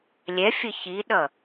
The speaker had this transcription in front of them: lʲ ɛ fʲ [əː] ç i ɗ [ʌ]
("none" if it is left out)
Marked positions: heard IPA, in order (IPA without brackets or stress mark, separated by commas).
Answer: ə, ʌ